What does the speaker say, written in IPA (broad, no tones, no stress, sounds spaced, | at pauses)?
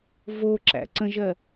v o ǁ æ̰ ǀ ə̃ ʒ ɜ